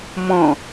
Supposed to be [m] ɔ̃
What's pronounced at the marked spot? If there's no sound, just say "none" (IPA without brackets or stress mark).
m